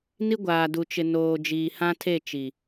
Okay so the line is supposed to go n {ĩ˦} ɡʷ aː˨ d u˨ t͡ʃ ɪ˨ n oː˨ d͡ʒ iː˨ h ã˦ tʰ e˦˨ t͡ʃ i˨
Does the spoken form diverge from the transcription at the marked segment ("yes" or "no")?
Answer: yes